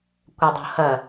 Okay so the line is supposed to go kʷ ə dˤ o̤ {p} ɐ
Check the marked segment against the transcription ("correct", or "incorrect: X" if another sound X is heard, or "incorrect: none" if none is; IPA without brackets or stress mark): incorrect: h